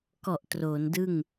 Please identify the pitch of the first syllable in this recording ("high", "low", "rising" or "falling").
low